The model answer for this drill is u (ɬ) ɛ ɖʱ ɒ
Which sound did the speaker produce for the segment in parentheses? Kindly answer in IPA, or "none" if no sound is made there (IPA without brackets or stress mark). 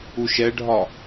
ʃ